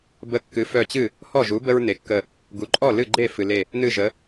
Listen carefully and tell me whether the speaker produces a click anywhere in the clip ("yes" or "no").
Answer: yes